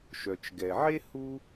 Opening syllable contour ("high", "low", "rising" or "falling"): low